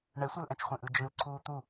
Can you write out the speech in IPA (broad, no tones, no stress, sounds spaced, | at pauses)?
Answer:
ɳ ɛ sʷ ɛ l ʔ ɛ̃ t͡ʃ χʷ ẽ ʔ ɯ d͡ʒ ɯ l ǀʰ uː t̪ u